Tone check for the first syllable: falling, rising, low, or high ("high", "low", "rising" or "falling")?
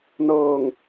low